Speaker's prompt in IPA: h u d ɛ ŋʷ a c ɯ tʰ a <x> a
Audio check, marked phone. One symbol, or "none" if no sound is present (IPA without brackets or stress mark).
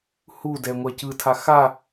x